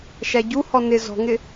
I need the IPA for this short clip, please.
ʃæɟuhɔ nɪ zɔ̤ŋɪ

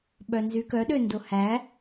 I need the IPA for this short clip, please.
ɓœnzykœɗø ndohæ

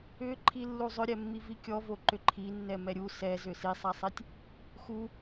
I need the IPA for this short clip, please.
ʏǃʰi lːuzˤʏɾʲɛmːi vikʲɔvo ǃʏǃʰinːɛ mɛɾʲu sɛzʏ sisˤasˤitʲ | xu

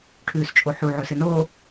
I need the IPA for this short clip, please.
ʈʰʉːst͡ʃʼoħu ʕɵsɨnoː

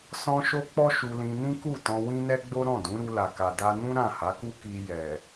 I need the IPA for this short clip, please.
sɔ̃˦ʃo˦ k͡pɔ˦ ʃu˧lĩ˧nĩ˦ku˦˨ tɔ̃˧wĩ˦nɛ˦ɡ͡bo˦ ɾɔ̃˦˨dũ˨˦ɾu˧ la˨ka˨da˧ nũ˦ ɾã˦˨ ha˨˦ku˦ ki˧jɛ˨

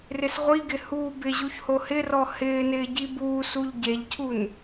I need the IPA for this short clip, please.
rɪsʁʷiɡɪ huːbɪʑuç hohɪrɔ hɪːnɪː ɟibuːsuʎ ɟeʎcʰun

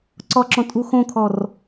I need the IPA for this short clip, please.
ǀɔǁɔ̃ tʼuxõkʰɔr

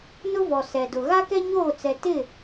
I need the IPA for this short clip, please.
nʊ˦vɔ˨sɛ˨dʊ˨ ɣa˦kɛ˦ɲoː˦˨t͡sɛ˨ tɪ˦˨

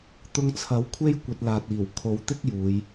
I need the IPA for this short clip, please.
t̪ʊ˧ŋt͡sʰɐ˨˥wkʷʰe˥j kʷɐ˧t̚laː˨t̚iː˨˩w kʰo˨˧wt̪ɪ˥k̚ juː˨˧j

